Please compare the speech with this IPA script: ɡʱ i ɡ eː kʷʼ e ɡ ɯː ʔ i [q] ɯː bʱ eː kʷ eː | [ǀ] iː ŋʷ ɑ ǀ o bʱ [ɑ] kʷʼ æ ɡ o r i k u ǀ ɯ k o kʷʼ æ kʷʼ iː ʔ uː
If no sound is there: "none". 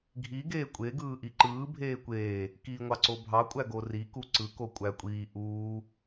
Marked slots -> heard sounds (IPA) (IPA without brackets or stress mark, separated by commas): ǃ, k, ɑ